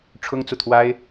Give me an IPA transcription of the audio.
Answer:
ʈ͡ʂʰʊ˥ŋt͡su˨t̪ʰwa˥ɪ̯

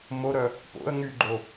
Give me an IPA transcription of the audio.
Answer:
moɾœ | po̰ə̯ ŋyɡ͡ǃo

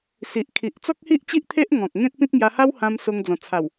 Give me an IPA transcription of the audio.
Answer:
si˨ʔkʰi˨ʔ t͡sɔ˦k̚hi˦ʔt͡ɕi˦ʔt̪ʰe˦ʔ ŋɔ̃˨k̚ŋẽ˦t̚pĩ˦t̚ ŋja˧ha˦whã˧mso˧ŋ d͡zɔ̃˨˩t͡sʰa˨˩w

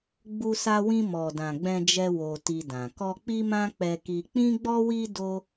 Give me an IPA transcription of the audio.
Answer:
ɡ͡bu˧sa˧wĩ˧ mɔ˨dã˨ɡ͡bɛ̃˧d͡ʒɛ˧ wo˧ti˧dã˨ kɔ˧k͡pi˦mã˦ k͡pɛ˧ki˧ k͡pĩ˦ɡ͡bɔ˦wi˦ do˦

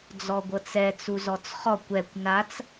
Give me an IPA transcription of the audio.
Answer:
d͡zɔɡʷɤt͡sɛ t͡suzɔt͡sχɔkʷ ɛkʷ nat͡s

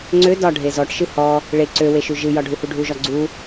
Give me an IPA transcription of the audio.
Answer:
ŋ͡ǀø dɒ ɖʱezɔʈʃɨ hɔ | ɭe ǀø weʃʉʒɨjɒ ɖʱuhuɖʱuʒɒ ɡ͡ǀu

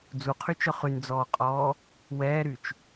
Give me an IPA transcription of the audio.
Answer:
d͡zuqʰyt͡ʃœ χynd͡zɔːqʼɔː | wɛːɾyt͡ʃ

